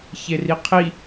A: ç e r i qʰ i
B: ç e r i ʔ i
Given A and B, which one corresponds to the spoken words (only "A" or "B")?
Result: A